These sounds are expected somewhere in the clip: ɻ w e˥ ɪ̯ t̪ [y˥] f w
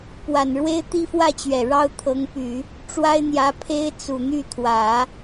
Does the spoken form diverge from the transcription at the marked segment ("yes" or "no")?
yes